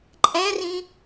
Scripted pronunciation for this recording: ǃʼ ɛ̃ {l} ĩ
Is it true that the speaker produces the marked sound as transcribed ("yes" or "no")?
no